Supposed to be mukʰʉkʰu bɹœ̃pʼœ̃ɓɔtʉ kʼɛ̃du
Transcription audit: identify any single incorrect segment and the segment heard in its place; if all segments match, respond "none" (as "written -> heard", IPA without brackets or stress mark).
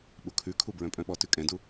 m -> ɓ